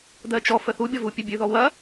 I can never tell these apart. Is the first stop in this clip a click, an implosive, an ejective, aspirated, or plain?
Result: plain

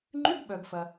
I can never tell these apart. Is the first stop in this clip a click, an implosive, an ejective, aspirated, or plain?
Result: click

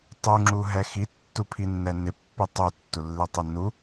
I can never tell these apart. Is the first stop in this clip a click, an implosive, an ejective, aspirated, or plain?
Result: plain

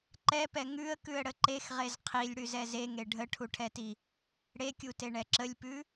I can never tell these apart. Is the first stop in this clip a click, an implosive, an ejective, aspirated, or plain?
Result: click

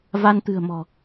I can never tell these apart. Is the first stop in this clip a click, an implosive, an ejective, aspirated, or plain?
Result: plain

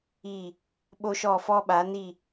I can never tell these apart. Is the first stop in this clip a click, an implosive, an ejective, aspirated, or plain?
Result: implosive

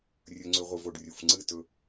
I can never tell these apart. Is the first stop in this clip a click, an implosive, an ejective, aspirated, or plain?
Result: click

